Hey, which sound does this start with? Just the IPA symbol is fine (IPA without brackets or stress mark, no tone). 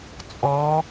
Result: t͡sʼ